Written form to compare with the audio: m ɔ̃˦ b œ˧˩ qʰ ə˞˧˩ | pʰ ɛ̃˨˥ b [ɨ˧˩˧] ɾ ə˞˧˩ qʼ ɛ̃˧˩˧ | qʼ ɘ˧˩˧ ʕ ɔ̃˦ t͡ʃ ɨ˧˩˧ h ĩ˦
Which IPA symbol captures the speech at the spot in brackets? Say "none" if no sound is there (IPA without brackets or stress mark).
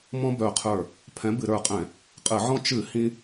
ɨ˧˩˧